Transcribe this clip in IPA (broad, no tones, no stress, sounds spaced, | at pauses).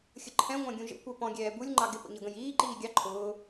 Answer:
xʲ ə ǃʰ ɛ̃ ŋʷ æ̃ ɡʲ ũ ʒ ə̰ kʷ ɛ p ɔ̃ ɡʲ ɛː b u lʲ ŋ͡ǃ ɑ ɡ ɪ p ə̰ ɲ ʌ ɡ ə̃ j iː ǃ iː ɡʲ ɑ ǃʰ ʊː